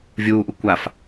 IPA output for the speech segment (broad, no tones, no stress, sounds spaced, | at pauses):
vʲ uː ʔ u kʷ a f